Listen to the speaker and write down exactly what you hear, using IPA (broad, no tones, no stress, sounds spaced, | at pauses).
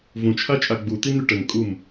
v ũ t͡ʃʰ a t͡ʃʼ a ɡ͡b u t̪ i n̪ y ʈ ə ŋ kʼ u m